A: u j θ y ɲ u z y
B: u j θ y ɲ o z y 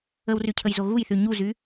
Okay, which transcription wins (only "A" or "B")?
A